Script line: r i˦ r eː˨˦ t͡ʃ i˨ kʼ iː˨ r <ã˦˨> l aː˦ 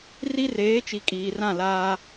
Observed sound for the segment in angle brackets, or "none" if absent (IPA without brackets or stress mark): ã˦˨